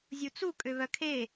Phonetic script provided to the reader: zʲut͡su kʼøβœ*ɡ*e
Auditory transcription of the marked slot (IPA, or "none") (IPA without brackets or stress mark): kʰ